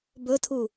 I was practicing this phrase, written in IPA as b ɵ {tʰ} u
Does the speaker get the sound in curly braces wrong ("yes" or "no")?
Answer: no